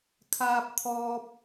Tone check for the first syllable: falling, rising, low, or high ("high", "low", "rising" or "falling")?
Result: high